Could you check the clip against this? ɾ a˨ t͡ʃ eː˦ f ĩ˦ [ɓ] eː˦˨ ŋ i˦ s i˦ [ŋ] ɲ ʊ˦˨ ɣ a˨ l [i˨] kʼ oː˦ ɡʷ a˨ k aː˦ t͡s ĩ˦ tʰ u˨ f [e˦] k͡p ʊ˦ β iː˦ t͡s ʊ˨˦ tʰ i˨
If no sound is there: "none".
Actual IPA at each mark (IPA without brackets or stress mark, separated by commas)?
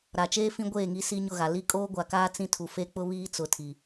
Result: ɡʷ, none, i˦, e˦